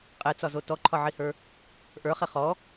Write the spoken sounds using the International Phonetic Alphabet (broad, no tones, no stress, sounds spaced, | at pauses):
qʼ e t͡s ɒ z o t ɔ ǃʰ ɒ ʕ i h ə˞ | ʔ ə˞ χ e χ ɔ